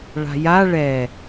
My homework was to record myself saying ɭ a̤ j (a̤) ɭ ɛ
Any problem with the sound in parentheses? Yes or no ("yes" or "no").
yes